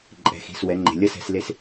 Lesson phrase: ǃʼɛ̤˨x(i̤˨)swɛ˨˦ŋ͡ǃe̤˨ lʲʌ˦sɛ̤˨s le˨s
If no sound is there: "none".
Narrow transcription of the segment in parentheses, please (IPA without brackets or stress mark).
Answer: i̤˨